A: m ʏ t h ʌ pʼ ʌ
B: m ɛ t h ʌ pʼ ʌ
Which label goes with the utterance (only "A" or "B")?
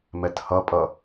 B